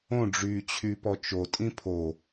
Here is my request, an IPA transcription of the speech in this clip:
õ ɖ͡ʐ yː t͡ɕʰ y p ɔ t͡ʃ o tʼ ĩ pʰ o

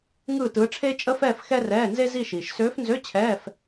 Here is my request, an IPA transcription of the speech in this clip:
ŋ ɯː˥˧ t ɯː˧˥ ʈ͡ʂʰ eː˥ t͡ʃʼ ə˥ f ɛː˥˧ f x ɛ˥ r ɛː˧˥˧ n z e˥ z i˥˧ ʃ iː˨ ʃ s øː˧˥ f n z ø˧˥˧ t͡ɕʰ ɛː˧˥˧ f

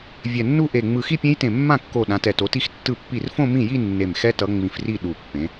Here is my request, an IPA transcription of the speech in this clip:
vʲ ɛ˧˩ nː u˥˧ ʔ e˧˩ ŋ͡m ɯ˧˩ x i˥˧ pʲ ẽ˦˥ j t ẽ˧˩ mː ã˥˩ kː o˧˩ ɗ ã˨˦ t ɛ˧˩ t o˨˦ t i˥˧ x tː ɯ˥˩ pː i˥˩ r f õ˥˧ m ĩ˥˩ j i˥˧ nː e˧˩ m x ɛ˦˥ t ʌ˨˦ ŋ͡m ĩ˧˩ f r i˥˩ ɗ u˧˩ pː ẽ˨˦

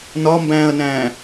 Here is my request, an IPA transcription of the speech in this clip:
n ɒ m b æ̃ː ɐ̯ n æ̃ː

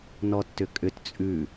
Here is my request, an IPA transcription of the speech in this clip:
n ɔ tː ʏ kʼ ʏ t t͡sʼ ʉ

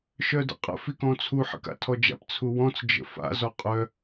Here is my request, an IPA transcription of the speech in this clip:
ʃ œ d ə̰ qʼ ə̰ f i k ɔ̃ t͡sʰ u ħ ə̰ k a̰ tʰ ɔ d͡ʒ a̰ p t͡sʰ u w ɔ̃ t͡s d͡ʒ ə̰ f a̰ z ɔ qʼ œ

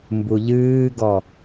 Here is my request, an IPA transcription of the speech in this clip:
m b u ʎ ɨː ɡ ɔ

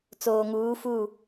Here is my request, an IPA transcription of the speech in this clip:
t͡s oː˨ ŋ uː˨˦ f u˦˨

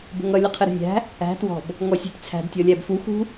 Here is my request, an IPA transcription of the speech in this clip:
b ə̤ ŋ ʌ lʲ ə qʰ ɪ ɾ ə̤ nʲ æ̤ | æ̤ t w ɔ̤ b | ŋ ɔ sʲ æ̤ tʲ t͡sʰ æ̤ d tʲ ɔ lʲ æ b f u x ṳ

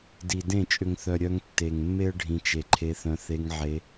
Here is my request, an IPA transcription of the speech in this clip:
d i˨ d ẽ˦˨ t͡ʃʼ ʏ˨ ŋ θ œ˨ ɾʲ œ˧ ŋ tː e˨ ŋ mː e˦ ə̯ ɖʱ ĩ˨ t͡ʃ e˨ ǃʰ e˧ θ œ̃˧ θ e˧ ŋ ʕ e˧

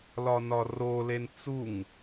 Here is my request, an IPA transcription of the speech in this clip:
l ɒ n ɒ r o l e n t͡s u ŋ

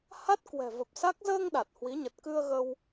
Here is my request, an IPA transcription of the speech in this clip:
h a˦˥ t̚ k w ɛ̤˨˩ v ə˨˩ p̚ s a˦˥ k̚ z əː˧ ŋ ɗ a˨˩ t̚ h w i˨˦ ɲ ə˨˩ t̚ k ɨ˧ ə̯ ɣ ə˧ w

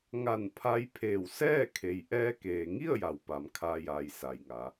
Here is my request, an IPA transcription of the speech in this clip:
ŋ a˧˩ n pʰ a˧ j pʰ eː˧˩ w s ɛː˥˨ kʰ e˩ j ʔ ɛː˧ k eː˩ ŋ i˥˨ ə̯ j a˩ w p a˩ m kʰ aː˧ j aː˩ j s a˩ j ŋ a˩˧

